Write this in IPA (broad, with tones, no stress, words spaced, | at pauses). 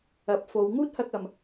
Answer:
ɐ˨˥p̚fo˨˧w ŋuː˥t̚hɐ˧k̚ɐ˨m